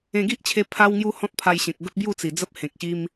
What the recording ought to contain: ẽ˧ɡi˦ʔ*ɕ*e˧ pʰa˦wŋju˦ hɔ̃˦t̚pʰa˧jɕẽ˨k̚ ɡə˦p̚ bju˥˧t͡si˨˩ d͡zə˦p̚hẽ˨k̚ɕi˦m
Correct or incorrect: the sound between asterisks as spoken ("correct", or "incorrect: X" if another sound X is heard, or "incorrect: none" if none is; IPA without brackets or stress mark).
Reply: incorrect: t͡ɕʰ